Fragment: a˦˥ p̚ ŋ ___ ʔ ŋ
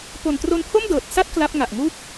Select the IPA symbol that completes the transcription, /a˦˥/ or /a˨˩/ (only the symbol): a˨˩